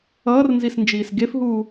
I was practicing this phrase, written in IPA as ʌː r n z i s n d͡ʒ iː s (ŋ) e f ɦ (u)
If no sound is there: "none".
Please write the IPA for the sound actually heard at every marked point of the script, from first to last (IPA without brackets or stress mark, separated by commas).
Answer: ɡ, uː